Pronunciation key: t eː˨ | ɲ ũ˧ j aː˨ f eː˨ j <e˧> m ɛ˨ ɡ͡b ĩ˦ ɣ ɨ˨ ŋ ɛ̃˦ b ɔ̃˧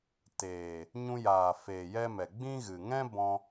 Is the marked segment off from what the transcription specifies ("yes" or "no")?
yes